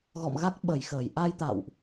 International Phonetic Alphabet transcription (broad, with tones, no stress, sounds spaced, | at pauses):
ɣ ɔ̰˧˨ m ɣ a˦˥ k̚ ɓ ə˧˩ j x əː˧˩ j ʔ a˧ j t̪ a̰˧˨ w ʔ